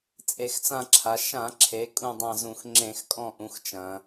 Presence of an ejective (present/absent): present